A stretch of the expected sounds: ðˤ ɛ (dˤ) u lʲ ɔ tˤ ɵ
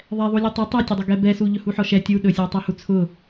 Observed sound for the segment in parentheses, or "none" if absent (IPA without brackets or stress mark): ðˤ